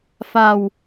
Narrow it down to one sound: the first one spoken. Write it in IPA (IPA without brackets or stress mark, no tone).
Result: f